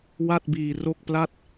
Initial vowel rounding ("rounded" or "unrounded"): unrounded